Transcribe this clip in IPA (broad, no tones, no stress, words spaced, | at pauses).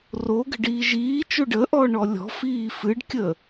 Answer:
roɡə̤ɖiː ʒiːt͡ʃo ɖəʔɔɳɔ lʲɔ̤fiː fɨɖkʲəː